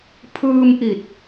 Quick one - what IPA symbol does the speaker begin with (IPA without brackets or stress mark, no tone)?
pʰ